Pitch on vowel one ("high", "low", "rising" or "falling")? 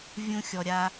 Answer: high